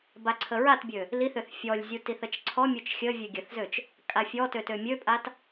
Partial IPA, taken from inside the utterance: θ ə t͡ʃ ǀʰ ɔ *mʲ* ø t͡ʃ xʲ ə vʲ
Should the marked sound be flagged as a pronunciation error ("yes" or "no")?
no